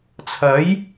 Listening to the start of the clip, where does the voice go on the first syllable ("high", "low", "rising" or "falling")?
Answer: rising